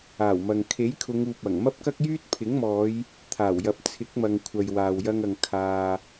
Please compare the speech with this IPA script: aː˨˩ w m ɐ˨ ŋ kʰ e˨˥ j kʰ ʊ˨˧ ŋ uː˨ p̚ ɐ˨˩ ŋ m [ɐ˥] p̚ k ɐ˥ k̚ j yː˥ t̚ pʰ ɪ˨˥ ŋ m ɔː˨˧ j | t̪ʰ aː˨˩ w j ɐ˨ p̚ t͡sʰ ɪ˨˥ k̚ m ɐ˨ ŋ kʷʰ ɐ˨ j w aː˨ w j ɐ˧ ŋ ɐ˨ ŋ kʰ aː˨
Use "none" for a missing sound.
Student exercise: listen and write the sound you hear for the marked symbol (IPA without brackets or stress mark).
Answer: ɐ˥